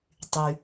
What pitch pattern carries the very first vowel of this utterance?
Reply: low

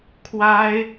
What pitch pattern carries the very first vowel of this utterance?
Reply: high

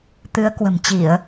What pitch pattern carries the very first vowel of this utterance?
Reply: rising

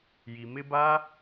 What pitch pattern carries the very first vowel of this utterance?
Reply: low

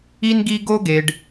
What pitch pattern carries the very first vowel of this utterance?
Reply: high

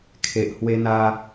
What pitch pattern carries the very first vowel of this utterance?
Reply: low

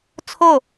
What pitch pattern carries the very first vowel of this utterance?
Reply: falling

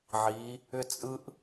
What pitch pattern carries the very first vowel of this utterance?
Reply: rising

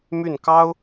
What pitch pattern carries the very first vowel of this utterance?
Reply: falling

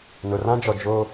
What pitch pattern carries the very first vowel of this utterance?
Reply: low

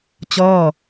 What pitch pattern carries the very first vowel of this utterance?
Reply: falling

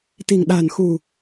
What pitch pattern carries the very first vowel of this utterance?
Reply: low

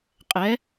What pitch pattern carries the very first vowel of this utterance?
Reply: rising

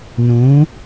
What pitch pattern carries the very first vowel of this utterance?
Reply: rising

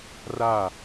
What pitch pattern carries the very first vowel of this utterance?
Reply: falling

